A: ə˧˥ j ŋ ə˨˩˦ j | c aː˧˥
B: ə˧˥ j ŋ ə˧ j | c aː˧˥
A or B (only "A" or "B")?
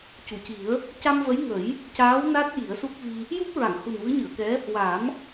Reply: A